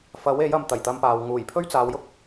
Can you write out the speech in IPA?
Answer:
f ɐ˨˥ w e˨˥ j ɐ˨ m t̪ ɐ˨˩ j t̪ ɐ˧ m p aː˨ w ŋ uː˨˩ j pʰ ɵ˥ ɥ t͡s aː˨˧ w j ʊ˥ k̚

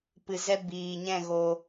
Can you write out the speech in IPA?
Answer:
p ɨ˨ z ɛ˧ b iː˨ ɲ ɛ̃˦˨ ɣ o˧

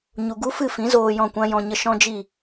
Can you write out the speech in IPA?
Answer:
ɲ u˨ ɡ u˦ f ɨ˦˨ f ĩ˨˦ z oː˧ j ɔ̃˦˨ kʷ ã˦ j ɔ̃˧ ɲ ə˧ ʃ ɔ̃˦ d͡ʒ i˦˨

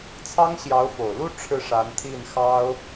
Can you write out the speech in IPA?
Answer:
t͡sʰ ɑ˥ ŋ ɕ j ɑ˧˥ ʊ̯ f o˨˩ ʊ̯ l u˥ ʈ͡ʂʰ ɻ̩˥˩ ʂ a˧˥ n t̪ʰ i˥˩ n x ɑ˥ ʊ̯

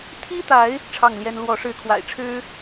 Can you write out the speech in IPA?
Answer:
t̪ʰ i˦ t̪ a˨˦ ɪ̯ | ʈ͡ʂʰ ɑ˥˨ ŋ l j ɛ˦ n l w ɔ˥˨ ʂ ɻ̩˥˨ kʰ w a̰˨˩ ɪ̯ ʈ͡ʂʰ ɻ̩˦

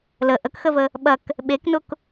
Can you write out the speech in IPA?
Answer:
l ə ʔ ə k x ə v ə | ɓ ɐ k | ɓ e k n ʊ k

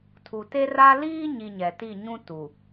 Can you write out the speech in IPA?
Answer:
tʰ u˨ t e˦ r a˦ l iː˦ ɲ i˨ ɲ ɛ˨ t i˦˨ ɲ ũ˦ t u˨

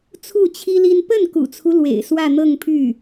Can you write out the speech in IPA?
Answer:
t͡sʰ u˥˩ t͡ɕʰ i˥ l i˥ n p ə˥˩ n k ṵ˨˩ t͡sʰ u˦ l w ḛ˨˩ ɪ̯ s w ä˥˧ n̪ ɤ˥˧ ŋ pʰ y˥˩

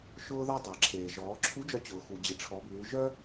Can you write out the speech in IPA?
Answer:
ʃ ʊː˥ ð ɔ˥ dˤ əː˩ ǁʰ eː˩ ʒ ɔː˩˧ ǁʰ u˧˥ d͡ʒ œ˧ t͡ɕ ʊː˩ x u˩ d͡ʑ i˩ ʈ͡ʂʰ ɔ˩˧ b ʉː˩˧ ʒ œ˥

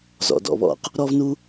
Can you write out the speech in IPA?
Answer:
z ɔ̰˩˧ d ɔ̰˧ β ɔ̰˥˧ q | ɾ ɔ˥ v n u˥

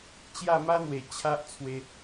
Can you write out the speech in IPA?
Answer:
t͡ɕ j a˥˧ m a˦ n̪ w e˨˩ t͡ɕʰ a˦ ʔ t͡sʰ w e˧

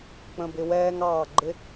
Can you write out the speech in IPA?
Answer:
k͡p ə̃˧ b ɪ˧ w ɛː˦ ŋ ɑː˦˨ ɡ͡ǃ ɪ˦

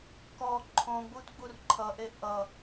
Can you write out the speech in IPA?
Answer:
k ɔ ǃʰ õ ɡ͡b u d ɡ͡b u r ǃʰ ʌ ʔ e ʔ ʌ

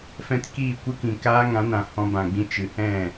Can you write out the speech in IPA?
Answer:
f ɛ̃˦ t k iː˦˨ kʷ ɨ˦ k ĩ˨ k aː˧ ŋ ã˨˦ n ã˨ h ɔ̃˧ b ã˨ ɡ͡b ĩ˧ t͡ʃ ɨ˨˦ h ɛ̃˦˨

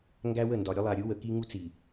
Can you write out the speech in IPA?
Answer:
ŋ ɡ æ˦ w ə˦˨ n d ɒ˨ ɾʲ ə˦ lˠ a˨ ɾʲ u˦ w ə˨ k i˦ ŋ u˦ t͡s i˨

